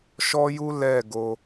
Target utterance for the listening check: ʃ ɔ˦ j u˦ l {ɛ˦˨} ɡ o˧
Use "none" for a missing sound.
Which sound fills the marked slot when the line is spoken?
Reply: ɛ˦˨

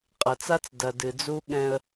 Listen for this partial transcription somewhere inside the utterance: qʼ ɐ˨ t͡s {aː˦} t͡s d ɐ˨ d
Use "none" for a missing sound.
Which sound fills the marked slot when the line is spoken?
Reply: a˦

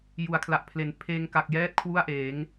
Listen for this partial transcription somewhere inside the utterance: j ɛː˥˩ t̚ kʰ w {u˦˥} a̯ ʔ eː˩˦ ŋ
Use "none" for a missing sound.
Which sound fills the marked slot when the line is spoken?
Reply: u˥˩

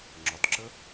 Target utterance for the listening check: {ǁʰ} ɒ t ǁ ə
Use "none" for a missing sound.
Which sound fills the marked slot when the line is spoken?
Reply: ŋ͡ǁ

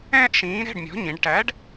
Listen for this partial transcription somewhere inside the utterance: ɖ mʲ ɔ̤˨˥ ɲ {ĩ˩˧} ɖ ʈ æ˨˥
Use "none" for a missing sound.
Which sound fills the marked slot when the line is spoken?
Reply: ĩ˩˧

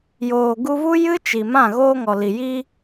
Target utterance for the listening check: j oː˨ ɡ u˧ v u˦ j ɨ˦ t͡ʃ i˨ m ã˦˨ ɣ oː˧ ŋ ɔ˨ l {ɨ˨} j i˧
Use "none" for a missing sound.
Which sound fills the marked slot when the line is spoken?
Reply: i˨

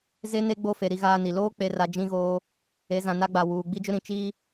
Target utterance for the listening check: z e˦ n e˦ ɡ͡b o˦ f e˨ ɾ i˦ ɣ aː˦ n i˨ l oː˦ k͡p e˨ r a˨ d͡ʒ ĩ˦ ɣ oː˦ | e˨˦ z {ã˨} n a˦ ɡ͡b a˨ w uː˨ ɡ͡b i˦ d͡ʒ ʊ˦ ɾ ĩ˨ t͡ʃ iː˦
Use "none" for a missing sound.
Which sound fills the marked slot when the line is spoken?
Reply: ã˨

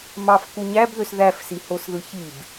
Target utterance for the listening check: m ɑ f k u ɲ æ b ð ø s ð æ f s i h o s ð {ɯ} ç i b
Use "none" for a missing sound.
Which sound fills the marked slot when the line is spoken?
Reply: ɯ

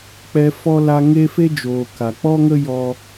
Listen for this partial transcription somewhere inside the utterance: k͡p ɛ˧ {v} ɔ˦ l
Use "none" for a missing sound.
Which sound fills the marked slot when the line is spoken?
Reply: f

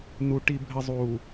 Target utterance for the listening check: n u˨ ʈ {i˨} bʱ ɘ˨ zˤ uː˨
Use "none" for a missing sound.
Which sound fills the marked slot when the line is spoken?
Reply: i˨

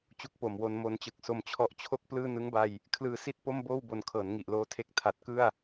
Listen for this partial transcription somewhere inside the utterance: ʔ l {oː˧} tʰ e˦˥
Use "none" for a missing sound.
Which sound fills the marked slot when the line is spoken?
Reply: oː˦˥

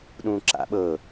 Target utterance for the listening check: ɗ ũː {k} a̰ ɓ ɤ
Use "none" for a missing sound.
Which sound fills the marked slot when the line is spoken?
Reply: ǁ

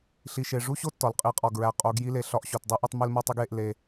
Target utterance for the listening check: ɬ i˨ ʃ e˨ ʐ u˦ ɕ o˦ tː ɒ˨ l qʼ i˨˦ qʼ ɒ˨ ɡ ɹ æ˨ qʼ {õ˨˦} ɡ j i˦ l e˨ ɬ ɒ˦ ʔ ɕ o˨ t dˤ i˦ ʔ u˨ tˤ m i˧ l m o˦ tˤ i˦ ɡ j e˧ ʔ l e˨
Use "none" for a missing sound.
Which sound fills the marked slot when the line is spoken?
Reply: o˨˦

